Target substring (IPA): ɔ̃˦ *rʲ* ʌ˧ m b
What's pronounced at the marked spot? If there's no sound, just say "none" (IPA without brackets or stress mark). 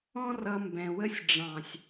r